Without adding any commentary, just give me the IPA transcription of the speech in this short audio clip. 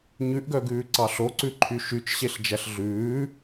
ɲʉʔɡœɡʉːǀɑ ɬoǀʉǃʰy ʃyt͡ʃɕeɬ d͡ʒæɬɮʉː

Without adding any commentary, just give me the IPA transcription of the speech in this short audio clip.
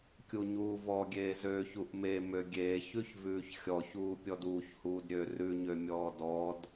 kʲuɲuːvɔɡʲeː zøːçuʔmemø ɡʲeːçʉç vʉːçxʲɔçuː pʲɔduːçhuːdɾʲøː rʉɲø mʲɔːdɔd

